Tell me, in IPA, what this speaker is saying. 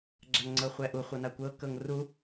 ɡ͡ǁaŋŋ͡ǀɤχʷɛʔu χʷɤnakʷɤ kɤŋru

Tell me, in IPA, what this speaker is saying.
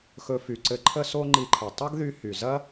xɵ˧fy˩ǀɘ˧ǃʰə˥ so˥ŋ͡ǃi˧ǃʰɘ˩ tˤɐ˥ɡðy˧ hy˩zɐ˥

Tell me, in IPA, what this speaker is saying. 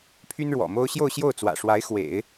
pʰy˥nɻwɔ̰˨˩mo˥ʊ̯ ɕjo˥˧ʊ̯ɕjo˥˩ʊ̯t͡swä̰˨˩ʂwa˧˥ɪ̯ xwḛ˨˩˦ɪ̯

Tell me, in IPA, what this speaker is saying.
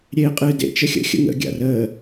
ɾʲeːqʼɨːdḛ t͡ʃəxʲə̰ xʲə̰ŋə̰ ɡʲa̰rəː

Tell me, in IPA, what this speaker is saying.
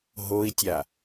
ɦoi̯tʲa

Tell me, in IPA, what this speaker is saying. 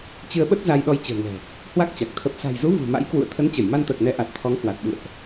t͡ɕɨ˧ə̯ɓə˦˥t̚ za˧jɗɔ˧j t͡ɕə̤ː˨˩ŋɛ̤˨˩ | hwa˦˥k̚t͡ɕa˨˩k̚ t̪ʰə˨˩p̚sa̤˨˩jzu˨˦ vṳ˨˩ma̰˧˥jkwṵ˧˨ə̯ t̪ʰə˨˦nt͡ɕə˧˩j ma˧nt̪əː˨˩k̚ nɛ˨˦ʔa˨˩t̚ t̪ʰɔ˨˦ŋhwa˨˩t̚ɓɨ̰˧˨ə̯ʔ

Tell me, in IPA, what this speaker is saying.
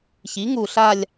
çi˩˥ŋu˨˩ɬa˦˨lʲ

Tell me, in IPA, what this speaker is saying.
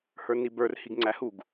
hə˞nibə˞r hiɡŋ͡ǀæhuɡ

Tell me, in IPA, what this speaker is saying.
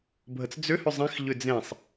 bʱət͡sd͡zʏ hʏzˤẽx ʎʏd͡zẽsˤ

